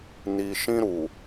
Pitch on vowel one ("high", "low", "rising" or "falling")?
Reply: low